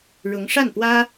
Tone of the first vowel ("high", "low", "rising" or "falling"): rising